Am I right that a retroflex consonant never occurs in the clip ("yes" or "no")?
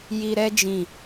yes